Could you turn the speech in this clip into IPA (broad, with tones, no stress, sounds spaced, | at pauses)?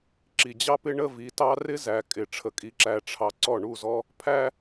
ǁ i˨ d͡ʑ ɑ˦ p ɪ˦ ɳ ə˦ v i˨˦ t ɑ˦ r ɪ˦ z æ˨ kʼ ɪ˨ ʈ͡ʂʰ ə˨ kʼ i˨ ǁ æ˨ ʈ͡ʂʰ ɑ˨ ǀ ɔ˦˨ ɳ u˦˨ z ɔ˦ | pʰ æ˦